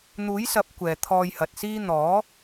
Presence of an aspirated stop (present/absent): present